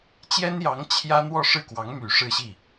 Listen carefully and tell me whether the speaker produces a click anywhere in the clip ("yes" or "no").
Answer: no